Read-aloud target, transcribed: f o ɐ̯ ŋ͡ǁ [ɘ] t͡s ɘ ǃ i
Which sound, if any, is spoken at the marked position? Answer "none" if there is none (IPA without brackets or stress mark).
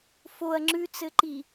ʉ